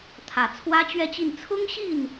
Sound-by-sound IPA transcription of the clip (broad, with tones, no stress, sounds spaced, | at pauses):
t̪ʰ ä˨˩ t͡sʰ w ä˥ t͡ɕ ɥ ɛ˥˧ t͡ɕ i˥˩ n t͡sʰ ʊ˥ ŋ ɕ i˥˩ n